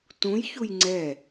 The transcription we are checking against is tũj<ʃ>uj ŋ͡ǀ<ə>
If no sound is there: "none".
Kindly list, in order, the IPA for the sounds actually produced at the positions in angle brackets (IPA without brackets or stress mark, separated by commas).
ç, ɛ